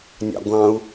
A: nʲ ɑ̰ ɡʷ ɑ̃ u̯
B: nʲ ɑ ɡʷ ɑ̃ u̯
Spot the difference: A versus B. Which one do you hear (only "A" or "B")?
A